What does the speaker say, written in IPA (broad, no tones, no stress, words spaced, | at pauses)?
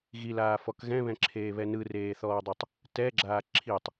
ɣilaːfɔk ɣɛ̃βɛ̃ǁʰeːβɛ nɯreːθɔːdˤutˤ | tɛɡ͡ǁaː ǁʰitˤ